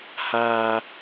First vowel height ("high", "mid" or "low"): low